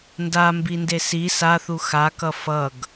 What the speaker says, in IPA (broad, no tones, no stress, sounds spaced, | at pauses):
n d a m b i n d e s i s a θ u x a k ʌ f ʌ ɡ